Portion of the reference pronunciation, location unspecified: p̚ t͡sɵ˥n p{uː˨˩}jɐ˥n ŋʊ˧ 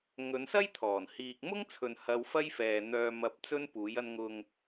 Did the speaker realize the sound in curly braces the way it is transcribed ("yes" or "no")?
no